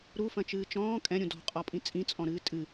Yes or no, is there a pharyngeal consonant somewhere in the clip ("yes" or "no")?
no